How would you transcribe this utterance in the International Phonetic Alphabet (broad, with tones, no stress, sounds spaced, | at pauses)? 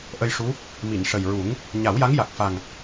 ʔ ə˧ j ʂ u˧˥ | m i˨˩˨ n ʂ ə˨˩ j ɹ u˨˩˦ ŋ | ɲ a˨˩˦ w j a˧˥ ŋ j a˨˩ k̚ f a˨˩ ŋ